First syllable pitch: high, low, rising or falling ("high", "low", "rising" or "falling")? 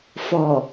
low